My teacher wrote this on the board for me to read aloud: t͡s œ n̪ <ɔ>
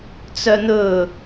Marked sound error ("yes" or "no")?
yes